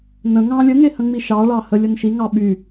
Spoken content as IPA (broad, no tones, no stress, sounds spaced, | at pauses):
n ə̃ ŋ ɑ̃ lʲ ə ŋ e h ə̃ ŋ͡m i ʃ ɑ ɭ ɑ h ə lʲ ə n ʃ i ŋ ɑ ɓ y